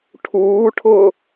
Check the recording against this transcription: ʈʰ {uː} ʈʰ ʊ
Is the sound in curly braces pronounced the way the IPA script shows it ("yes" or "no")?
yes